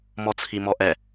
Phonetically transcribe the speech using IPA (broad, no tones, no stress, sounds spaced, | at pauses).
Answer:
m ɔ t͡sʰ i m ɔ ʔ ɛ